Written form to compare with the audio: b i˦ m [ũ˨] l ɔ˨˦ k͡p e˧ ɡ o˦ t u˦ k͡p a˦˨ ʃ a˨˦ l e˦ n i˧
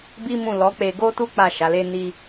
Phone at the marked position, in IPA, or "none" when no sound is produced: ũ˦˨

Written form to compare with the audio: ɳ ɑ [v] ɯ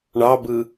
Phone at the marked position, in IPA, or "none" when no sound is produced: b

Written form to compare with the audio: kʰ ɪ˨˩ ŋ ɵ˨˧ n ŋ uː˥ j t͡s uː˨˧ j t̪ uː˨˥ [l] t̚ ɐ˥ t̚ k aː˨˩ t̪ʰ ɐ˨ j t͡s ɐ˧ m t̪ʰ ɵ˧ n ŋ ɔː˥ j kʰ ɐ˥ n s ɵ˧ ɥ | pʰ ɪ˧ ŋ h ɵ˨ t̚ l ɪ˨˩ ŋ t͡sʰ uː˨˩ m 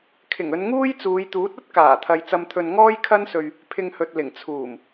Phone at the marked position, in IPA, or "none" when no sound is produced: none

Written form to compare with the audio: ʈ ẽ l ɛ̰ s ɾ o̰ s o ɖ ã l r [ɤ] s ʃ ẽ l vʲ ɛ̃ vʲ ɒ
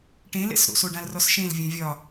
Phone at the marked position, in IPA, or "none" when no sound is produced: ɔ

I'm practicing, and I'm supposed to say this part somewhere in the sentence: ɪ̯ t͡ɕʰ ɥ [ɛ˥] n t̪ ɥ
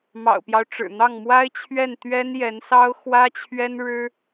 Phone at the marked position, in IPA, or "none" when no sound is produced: ɛ˥˩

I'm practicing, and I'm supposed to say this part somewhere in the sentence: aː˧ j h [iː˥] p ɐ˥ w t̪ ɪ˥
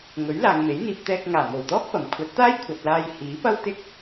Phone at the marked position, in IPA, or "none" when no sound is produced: iː˨˥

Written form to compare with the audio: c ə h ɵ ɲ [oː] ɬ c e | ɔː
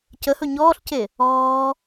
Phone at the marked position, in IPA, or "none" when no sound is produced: ɔː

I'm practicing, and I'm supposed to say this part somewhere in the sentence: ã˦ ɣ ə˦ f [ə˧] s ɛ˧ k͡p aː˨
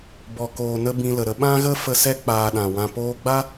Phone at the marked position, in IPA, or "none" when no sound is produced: ə˧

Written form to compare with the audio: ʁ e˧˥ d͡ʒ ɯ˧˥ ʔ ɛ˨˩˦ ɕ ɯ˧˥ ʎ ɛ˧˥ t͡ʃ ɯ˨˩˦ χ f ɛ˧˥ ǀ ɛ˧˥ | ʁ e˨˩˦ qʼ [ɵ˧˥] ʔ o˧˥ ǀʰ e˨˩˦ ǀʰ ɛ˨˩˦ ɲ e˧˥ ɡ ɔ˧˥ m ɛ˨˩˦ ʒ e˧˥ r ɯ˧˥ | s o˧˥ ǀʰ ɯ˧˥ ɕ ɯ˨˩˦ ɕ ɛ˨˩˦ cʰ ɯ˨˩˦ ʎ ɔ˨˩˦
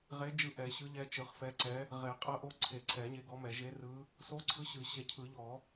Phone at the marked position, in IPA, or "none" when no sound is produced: ɤ˧˥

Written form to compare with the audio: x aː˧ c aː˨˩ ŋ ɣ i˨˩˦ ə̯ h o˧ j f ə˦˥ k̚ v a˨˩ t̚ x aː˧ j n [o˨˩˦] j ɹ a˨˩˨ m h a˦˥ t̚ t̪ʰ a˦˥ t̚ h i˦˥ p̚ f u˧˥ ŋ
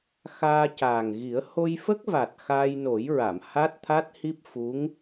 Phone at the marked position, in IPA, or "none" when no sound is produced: o˨˩˦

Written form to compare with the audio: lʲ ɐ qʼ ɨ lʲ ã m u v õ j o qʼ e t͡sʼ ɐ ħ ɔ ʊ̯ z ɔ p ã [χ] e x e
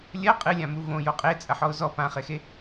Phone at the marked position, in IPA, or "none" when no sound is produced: χ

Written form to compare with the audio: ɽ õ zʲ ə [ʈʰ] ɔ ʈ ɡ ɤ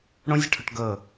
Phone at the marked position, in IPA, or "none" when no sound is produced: ʈʰ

